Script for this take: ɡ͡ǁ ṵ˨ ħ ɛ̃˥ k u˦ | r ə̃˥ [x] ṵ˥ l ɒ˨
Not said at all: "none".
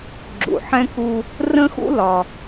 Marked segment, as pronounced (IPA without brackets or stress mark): x